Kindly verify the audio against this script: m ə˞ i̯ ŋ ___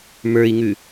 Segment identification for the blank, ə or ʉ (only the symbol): ʉ